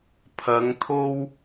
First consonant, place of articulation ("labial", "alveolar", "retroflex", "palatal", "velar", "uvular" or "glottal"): labial